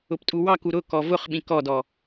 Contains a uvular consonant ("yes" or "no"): yes